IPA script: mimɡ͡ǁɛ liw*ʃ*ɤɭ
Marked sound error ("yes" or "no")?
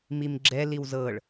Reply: yes